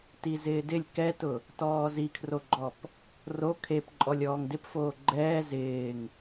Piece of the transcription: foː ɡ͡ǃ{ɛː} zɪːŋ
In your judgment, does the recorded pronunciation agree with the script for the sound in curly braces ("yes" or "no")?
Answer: yes